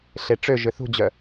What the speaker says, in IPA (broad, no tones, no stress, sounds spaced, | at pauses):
ɬ e ʈ͡ʂ ø ʒ ʏ θ ṳ d͡ʑ œ